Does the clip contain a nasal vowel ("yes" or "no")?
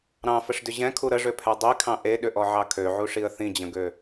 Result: yes